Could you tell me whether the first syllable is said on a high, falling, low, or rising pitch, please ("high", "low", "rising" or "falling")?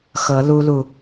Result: rising